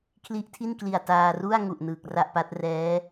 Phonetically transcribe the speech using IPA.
kʰli˦˥ʔtʰi˥˩nkli˨˩a̯ taː˧ru˥˩a̯ ŋu˨˩ʔ nɯː˨˩k̚ra˥˩ʔpa˦˥t̚ rɛː˦˥

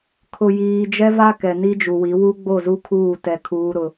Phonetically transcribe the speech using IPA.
kʰʊ˨jiː˨d͡ʒɛ˦ va˦ kɛ˨ni˦d͡ʒu˨wi˨˦ wu˦ɡ͡bo˦˨zu˦kʰuː˦˨ tɛ˨ kʰuː˦ɾʊ˦

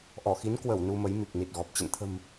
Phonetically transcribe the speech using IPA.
ʔɔ˧˩xi˨˦n kwə˧˩w nu˧mə˨˦jmi˨˩k̚ ni˨˩t̚ɣɔ˨˩p̚ t͡ɕə̰˧˨n t̪ʰə̤˨˩m

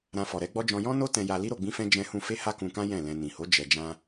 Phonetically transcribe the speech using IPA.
ɾã˧fɔ˨ɾɛ˨˦ɡ͡bɔ˦ d͡ʒɔ̃˧jɔ̃˦no˦ tɛ̃˧ja˧li˦ ɾo˧ɡ͡bĩ˦fɛ̃˦ d͡ʒɛ̃˦hũ˦ fe˦ha˦kũ˧kã˦ jɛ̃˦˨lɛ̃˧ nĩ˨ho˨˦ d͡ʒɛ˧d͡ʒã˦

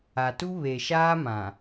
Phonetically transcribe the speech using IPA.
a˨tu˦ βe˨ʃaː˦mã˨

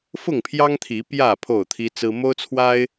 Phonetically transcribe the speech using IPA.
fʊ˥˨ŋpʰjɑ˦ŋt̪ʰi˨˦ pjä˥˨ pʰo˥˨ʊ̯t̪ʰi˦t͡sɹ̩˦ mo˦ʊ̯t͡sʰwa˦ɪ̯

